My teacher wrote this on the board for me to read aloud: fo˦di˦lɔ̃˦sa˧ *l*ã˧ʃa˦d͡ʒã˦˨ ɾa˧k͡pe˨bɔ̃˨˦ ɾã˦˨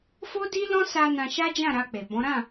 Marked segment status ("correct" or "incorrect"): incorrect